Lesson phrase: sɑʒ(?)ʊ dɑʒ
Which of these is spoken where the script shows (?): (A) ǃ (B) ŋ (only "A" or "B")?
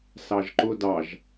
A